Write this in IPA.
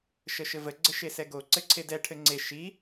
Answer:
ʃ ə ʃ ɘ v ə ɡ͡ǀ ə ʃ e s ɛ ɡ o ǀ ɘ ǀʰ e d ɛ ʈʰ ɘ ŋ͡ǀ e ʃ i

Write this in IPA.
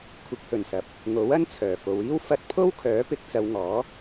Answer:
kʷʰ ɪ˨˥ k̚ h ɵ˨˩ n s ɐ˨˥ p̚ | ŋ o˨˥ w ɐ˥ n t͡sʰ œː˨˩ f o˨ w iː˥ w f ɐ˧ t̚ pʰ o˥ w kʰ œː˨˥ p ɪ˨˥ k̚ t͡s ɐ˨˧ w ŋ ɔː˨˥

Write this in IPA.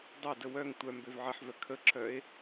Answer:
dˤ ø d ə w œ ŋ tʷ œ m b ø v ʕ ə ħ v œ kʰ ə ǁ œ e̯

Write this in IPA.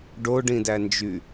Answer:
ɖ o ɖ ĩ d æ n d͡ʒ y

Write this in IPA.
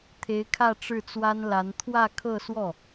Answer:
t̪ʰ e˧˥ ɪ̯ kʰ ä˥˧ ʈ͡ʂ ɻ̩˥˩ t͡s w a˥ n l a˧˥ n t̪ʰ w ä˥˧ kʰ ɤ˥˧ s w ɔ˥˩

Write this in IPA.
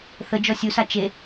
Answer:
θ ə d͡ʒ ɔ sʲ u s a t͡ʃ e

